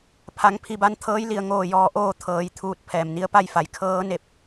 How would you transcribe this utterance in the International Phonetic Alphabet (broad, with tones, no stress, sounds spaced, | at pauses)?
pʰ a˩˧ ŋ pʰ i˧ b a˧˥ n t̪ʰ ɤː˧˥ j l i˧˩ ə̯ ŋ oː˧˩ j ɔː˧˩ ʔ oː˧˩ t̪ʰ ɤː˩˧ j t̪ʰ uː˧˩ t̚ pʰ ɛː˩ m n i˧ ə̯ p a˥˨ j f a˩˧ j kʰ ɤː˧˥ n e˧˥ p̚